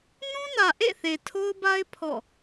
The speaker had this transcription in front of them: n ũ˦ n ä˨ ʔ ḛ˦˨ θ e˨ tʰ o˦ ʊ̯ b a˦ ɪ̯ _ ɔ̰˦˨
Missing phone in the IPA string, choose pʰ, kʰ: pʰ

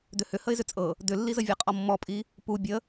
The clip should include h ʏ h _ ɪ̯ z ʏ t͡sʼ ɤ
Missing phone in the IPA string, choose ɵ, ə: ə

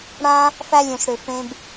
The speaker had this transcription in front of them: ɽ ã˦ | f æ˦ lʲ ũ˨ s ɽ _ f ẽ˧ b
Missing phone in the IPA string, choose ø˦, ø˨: ø˨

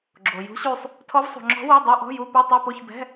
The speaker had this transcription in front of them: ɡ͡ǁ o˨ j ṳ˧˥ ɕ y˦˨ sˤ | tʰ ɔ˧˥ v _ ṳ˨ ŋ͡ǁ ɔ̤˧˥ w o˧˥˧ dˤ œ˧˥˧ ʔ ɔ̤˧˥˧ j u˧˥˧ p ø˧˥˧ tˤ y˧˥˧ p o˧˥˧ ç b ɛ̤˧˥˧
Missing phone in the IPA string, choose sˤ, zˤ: sˤ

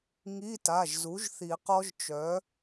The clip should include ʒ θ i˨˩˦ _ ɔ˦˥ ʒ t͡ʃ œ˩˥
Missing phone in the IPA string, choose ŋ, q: q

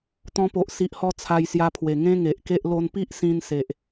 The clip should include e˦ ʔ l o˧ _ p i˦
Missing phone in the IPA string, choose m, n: n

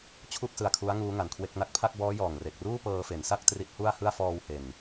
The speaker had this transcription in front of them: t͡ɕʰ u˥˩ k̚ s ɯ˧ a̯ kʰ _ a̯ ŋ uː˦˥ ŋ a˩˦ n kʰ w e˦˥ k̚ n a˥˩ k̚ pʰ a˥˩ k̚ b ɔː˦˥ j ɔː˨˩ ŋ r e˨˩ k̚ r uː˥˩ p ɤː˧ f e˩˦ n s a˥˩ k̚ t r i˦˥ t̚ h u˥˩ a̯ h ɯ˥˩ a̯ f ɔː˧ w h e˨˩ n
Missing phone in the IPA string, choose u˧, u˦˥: u˦˥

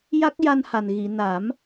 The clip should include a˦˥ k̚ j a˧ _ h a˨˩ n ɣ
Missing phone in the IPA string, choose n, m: n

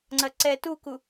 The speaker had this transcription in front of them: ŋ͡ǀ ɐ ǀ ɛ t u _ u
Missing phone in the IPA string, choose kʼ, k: k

